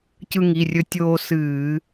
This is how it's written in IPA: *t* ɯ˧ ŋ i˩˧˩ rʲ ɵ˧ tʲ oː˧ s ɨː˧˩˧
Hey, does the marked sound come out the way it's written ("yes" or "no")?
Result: no